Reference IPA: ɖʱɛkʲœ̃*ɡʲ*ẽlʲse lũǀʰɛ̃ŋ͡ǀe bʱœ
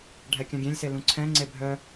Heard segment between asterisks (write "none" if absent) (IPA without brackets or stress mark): ɡʲ